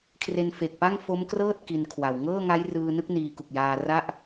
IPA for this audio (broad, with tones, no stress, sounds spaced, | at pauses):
kʰ r e˧ n f e˨˩ k̚ p a˥˩ ŋ f o˦˥ m k r ɤː˥˩ t̚ k i˧ n kʰ w a˨˩ w ŋ ɤː˥˩ ŋ a˦˥ j r ɯː˧ n ɯ˦˥ k̚ n iː˧ k u˨˩ k̚ j aː˧ r a˥˩ ʔ